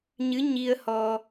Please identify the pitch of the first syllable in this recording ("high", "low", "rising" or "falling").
rising